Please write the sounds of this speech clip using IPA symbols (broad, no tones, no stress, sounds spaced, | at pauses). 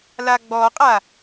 l a ɡ͡b ɔ qʼ a